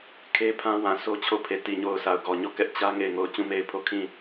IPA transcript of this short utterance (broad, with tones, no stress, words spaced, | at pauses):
kʰe˦pʰã˦ wã˨so˦t͡ɕʰo˦˨ pʰe˨ti˨ɲo˨ʊ̯ sa˨ʊ̯ɡɔ˨ɲɔ˦˨kɛ˦ʔ t͡ɕä˦ ŋe˦˨ɪ̯ŋo˦˨ʊ̯ t͡ɕũ˦˨me˦˨ɪ̯pʰo˦˨kʰĩ˦˨